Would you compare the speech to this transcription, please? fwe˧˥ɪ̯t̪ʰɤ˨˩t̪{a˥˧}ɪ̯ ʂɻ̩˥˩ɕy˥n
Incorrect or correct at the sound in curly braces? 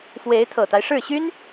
incorrect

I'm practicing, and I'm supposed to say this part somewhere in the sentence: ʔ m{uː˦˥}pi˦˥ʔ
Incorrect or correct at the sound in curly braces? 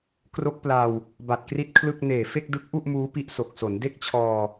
correct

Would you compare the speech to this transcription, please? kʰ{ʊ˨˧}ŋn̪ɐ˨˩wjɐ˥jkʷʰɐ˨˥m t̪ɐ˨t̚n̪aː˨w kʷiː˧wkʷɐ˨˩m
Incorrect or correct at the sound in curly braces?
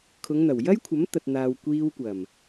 correct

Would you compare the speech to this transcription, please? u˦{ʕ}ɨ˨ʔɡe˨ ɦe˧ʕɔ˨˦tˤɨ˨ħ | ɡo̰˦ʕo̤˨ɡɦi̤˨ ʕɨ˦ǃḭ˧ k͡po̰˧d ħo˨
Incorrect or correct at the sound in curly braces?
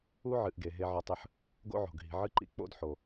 correct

